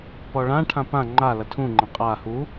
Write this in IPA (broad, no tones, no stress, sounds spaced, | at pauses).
p ɔ ɭ ã ʈʰ ã p ã ŋ͡ǃ a l ɐ tʰ ũ ŋ͡ǃ ɐ̃ qʼ a h u